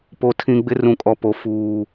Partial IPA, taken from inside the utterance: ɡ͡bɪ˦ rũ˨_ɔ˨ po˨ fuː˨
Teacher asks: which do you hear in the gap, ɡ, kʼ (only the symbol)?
kʼ